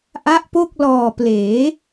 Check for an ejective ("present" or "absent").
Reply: absent